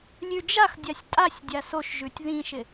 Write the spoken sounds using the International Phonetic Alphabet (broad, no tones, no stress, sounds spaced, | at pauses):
lʲ ʉ d͡ʒ a x dʲ a sʲ tʼ a sʲ dʲ a s o ʃ ʒ ʉ tʲ ð ĩ ʃ ɪ